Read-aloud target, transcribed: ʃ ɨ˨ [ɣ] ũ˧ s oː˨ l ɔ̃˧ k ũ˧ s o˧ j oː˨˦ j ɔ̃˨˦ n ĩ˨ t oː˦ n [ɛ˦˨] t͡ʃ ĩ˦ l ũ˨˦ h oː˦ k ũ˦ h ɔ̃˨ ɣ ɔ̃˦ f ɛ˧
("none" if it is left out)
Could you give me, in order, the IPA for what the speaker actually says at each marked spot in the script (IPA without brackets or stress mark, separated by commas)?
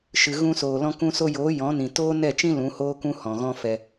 ɣ, ɛ˦˨